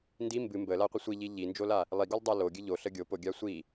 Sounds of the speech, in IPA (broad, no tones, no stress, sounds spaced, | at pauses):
n d i m b ɨ m b ə l a qʷ ɨ sʷ i ʎ i ʎ i n d͡ʒ o l a | lˠ i ɡ o lˠ dˤ a l o ɡʲ ɨ ʎ o ɬ ə ɡʲ o p o ɡʲ a sʷ i